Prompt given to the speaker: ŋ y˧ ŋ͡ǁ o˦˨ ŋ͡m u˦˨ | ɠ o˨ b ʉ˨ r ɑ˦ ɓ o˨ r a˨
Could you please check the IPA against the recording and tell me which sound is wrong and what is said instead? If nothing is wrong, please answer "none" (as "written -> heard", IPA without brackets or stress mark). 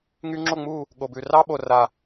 none